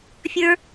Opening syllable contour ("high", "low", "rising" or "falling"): high